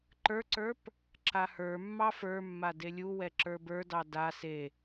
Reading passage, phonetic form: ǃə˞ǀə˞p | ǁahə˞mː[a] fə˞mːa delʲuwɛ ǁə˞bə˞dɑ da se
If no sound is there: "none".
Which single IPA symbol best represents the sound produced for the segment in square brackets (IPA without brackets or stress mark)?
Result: ɑ